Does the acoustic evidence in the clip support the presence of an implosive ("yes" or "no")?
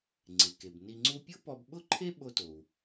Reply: yes